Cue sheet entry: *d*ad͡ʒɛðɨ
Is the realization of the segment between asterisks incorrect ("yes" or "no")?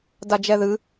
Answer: no